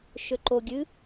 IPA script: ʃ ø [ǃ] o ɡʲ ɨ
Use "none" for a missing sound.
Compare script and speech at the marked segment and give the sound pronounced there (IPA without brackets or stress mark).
ǃ